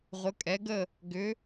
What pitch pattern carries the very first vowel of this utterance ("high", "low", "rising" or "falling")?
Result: rising